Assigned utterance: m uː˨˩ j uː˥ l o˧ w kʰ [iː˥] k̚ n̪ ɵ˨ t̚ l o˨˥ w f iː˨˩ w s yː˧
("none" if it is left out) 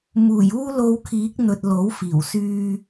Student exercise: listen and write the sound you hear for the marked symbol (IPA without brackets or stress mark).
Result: iː˨˥